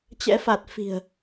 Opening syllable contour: rising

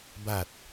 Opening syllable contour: falling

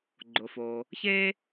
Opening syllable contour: low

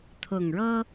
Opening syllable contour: low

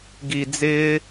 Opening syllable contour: low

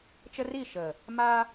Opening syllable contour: high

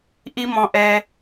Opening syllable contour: high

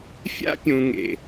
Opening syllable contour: high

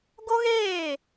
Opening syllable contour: high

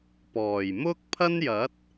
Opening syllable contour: low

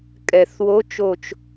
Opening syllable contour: low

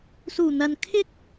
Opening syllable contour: low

